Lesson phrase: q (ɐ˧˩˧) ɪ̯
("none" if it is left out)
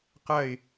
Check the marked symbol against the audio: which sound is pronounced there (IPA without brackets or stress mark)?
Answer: ɐ˥˧